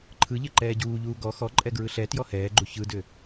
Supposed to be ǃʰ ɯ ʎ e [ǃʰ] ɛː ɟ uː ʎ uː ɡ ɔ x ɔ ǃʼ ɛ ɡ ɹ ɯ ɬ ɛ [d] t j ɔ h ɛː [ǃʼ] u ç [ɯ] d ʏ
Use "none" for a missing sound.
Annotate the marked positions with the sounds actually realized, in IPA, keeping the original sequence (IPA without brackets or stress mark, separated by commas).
ǃ, none, ɡ͡ǃ, ɯ